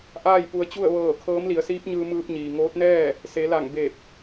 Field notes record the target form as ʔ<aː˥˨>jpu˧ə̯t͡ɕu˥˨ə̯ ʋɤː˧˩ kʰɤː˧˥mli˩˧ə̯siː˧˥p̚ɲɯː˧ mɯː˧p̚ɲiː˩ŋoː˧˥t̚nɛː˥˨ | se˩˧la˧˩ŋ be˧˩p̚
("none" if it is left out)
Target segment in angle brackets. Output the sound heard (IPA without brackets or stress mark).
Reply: aː˥˨